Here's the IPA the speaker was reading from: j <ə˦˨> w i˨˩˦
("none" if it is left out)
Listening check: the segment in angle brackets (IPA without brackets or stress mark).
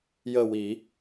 ə˦˨